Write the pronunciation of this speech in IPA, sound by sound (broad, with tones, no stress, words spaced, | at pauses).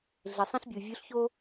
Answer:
ɮe˩sˤĩ˧ɬbʲu˩ vʲu˧˥ɬço˥